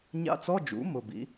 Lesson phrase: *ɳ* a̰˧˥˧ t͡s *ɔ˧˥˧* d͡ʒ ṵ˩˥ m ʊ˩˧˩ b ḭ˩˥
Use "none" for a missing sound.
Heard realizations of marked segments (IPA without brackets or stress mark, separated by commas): ɲ, ɔ˧˥˧